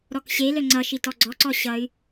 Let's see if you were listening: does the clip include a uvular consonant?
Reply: no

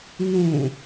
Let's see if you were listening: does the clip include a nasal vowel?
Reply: yes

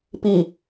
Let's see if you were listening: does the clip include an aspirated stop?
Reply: no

